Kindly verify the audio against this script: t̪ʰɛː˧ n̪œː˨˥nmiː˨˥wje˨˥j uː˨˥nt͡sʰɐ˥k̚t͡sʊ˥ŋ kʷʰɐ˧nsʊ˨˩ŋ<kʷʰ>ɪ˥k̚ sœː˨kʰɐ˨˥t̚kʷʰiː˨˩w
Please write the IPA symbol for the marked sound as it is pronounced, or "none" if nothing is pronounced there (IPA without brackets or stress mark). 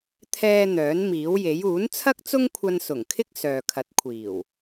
kʰ